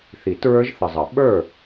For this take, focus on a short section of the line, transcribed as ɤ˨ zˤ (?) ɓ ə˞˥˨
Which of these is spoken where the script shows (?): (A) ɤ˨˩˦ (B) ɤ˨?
A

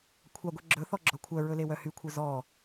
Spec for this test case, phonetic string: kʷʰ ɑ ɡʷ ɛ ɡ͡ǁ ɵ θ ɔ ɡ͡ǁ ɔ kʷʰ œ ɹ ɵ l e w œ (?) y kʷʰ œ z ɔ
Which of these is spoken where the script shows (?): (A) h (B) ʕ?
A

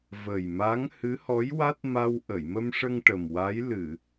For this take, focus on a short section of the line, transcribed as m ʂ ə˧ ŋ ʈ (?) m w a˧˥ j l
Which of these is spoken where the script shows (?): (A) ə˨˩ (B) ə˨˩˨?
A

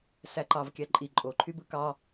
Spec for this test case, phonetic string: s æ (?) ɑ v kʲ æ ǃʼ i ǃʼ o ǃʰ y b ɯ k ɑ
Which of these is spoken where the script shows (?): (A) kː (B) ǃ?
B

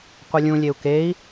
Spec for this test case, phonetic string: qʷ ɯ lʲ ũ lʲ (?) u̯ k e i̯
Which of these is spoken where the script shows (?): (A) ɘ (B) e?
B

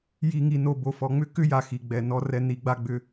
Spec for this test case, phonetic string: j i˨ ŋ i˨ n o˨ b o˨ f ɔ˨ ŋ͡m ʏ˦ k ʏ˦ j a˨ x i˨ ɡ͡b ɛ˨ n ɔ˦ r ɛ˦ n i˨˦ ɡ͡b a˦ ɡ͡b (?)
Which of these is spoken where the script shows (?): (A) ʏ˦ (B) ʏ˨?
A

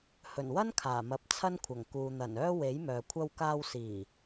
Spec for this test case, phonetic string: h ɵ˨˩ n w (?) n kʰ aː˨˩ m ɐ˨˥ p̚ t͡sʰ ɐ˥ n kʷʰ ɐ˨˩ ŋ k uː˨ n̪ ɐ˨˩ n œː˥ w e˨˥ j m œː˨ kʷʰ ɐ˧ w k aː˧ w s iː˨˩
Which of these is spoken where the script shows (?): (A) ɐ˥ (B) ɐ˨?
A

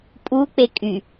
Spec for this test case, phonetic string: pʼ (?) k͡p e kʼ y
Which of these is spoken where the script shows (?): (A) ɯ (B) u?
B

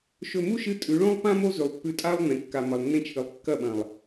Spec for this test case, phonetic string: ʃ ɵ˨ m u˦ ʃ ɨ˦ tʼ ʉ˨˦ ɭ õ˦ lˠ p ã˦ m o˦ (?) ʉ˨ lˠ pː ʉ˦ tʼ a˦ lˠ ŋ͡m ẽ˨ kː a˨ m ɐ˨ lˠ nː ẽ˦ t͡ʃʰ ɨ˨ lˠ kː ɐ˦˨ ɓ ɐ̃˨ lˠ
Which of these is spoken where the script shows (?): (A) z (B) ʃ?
A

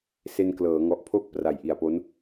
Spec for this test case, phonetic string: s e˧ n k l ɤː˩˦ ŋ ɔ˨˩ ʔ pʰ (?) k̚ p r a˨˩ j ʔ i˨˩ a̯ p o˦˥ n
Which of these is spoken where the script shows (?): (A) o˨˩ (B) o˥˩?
B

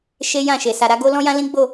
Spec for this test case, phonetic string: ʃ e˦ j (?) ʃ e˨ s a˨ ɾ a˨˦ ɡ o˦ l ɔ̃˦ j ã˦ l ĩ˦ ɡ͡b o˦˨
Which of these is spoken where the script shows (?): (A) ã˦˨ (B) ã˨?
A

